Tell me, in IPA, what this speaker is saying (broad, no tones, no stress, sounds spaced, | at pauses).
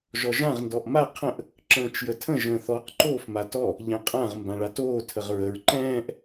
ʒ ɔ ʒ ã ʁ n d ɔ ʔ m a qʰ ə̃ ʔ | ǁ ə̃ː t͡ʃ j ə tʰ ə̃ ʒ ə̃ː θ ɔ q ǃ oː f m a t ɔ | ʎ ɛ̃ qʼ ã ʁ m b ã ɭ a t oː tʰ ə ʁ ɹ ə ɹ ǃ ɛ̃ː ʔ